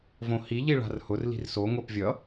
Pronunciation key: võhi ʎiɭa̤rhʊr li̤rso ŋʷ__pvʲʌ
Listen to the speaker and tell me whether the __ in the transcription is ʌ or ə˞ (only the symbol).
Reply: ə˞